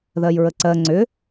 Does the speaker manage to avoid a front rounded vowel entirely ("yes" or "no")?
no